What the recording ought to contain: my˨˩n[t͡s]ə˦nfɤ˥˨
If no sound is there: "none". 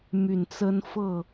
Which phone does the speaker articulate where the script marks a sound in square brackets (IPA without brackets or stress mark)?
t͡s